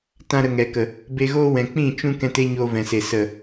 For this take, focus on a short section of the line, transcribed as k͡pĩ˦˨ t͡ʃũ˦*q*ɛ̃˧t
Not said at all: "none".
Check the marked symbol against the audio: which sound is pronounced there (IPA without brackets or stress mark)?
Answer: k